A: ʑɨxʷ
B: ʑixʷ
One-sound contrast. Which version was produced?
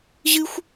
A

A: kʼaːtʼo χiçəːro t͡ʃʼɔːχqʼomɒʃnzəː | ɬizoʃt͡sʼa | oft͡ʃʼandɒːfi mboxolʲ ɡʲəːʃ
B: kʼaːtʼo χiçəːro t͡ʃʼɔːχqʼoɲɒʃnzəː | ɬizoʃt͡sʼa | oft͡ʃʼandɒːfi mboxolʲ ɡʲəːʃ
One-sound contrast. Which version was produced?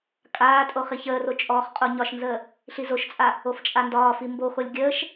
B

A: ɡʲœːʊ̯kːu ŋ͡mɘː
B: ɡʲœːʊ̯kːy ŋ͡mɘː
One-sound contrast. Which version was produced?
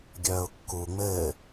A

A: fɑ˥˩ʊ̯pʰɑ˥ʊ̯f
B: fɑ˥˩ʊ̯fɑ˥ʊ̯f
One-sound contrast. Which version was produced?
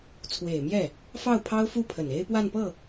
A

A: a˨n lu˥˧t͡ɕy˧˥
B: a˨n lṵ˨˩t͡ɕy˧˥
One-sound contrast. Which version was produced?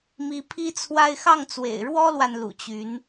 B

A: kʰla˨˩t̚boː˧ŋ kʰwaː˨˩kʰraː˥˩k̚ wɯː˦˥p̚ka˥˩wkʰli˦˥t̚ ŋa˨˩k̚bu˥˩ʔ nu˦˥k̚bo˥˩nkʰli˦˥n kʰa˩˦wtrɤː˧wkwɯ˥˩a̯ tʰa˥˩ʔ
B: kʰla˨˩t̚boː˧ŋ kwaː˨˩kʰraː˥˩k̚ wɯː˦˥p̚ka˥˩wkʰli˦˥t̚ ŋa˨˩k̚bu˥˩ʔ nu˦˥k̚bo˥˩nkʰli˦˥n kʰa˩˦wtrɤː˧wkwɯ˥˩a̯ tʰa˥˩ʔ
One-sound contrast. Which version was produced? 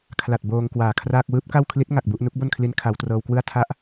B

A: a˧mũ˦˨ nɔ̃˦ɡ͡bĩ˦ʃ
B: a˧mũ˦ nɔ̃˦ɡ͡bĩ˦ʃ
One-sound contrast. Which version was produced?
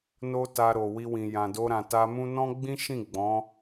B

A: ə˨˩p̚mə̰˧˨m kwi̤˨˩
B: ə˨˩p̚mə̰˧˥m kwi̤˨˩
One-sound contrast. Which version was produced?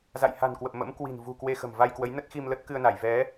B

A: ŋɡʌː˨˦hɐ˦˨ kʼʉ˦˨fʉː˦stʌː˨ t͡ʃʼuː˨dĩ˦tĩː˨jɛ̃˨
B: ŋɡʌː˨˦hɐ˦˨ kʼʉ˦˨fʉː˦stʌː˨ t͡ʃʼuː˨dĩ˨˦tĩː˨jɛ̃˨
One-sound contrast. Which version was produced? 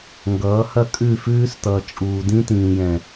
A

